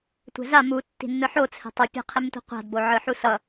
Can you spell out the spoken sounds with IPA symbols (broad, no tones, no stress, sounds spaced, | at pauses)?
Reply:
tʷ ɛ̤ z a m u tː i̤ nː ɯ ħ o t͡sʰ ɛ̤ tˤ ɯ pʲ a̤ qʰ i m tʷ i̤ qʷ a̤ d b o ʕ ɯ ħ u s ʌ